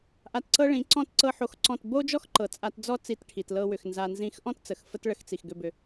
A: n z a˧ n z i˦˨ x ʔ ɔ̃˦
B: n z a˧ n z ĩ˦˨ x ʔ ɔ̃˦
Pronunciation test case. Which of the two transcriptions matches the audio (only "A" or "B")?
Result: B